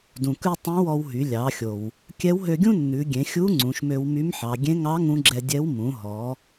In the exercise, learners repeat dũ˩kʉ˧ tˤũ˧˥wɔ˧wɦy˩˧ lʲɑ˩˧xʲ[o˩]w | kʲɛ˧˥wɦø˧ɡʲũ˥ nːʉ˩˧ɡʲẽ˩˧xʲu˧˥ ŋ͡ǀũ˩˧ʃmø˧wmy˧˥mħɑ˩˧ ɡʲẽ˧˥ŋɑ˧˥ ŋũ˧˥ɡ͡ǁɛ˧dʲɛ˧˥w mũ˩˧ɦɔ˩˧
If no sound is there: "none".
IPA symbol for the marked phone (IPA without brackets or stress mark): o˩